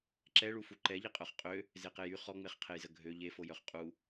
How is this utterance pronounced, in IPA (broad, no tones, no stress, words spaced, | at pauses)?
ǁɛɭu fuǃɛʎiqʼœχ qʼø | zeqejy χɔŋ͡meχqʰejzə ɡʱø ʎefojœχ qʼu